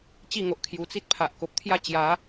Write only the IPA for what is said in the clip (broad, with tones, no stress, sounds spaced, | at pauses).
t͡ɕ i˥˧ ŋ o˨ ʔ kʰ j u˨˩ t͡s i˦ t̚ pʰ a˨ ʔ k o˨ p̚ t̪ʰ j a˦ t͡ɕ j a˨˦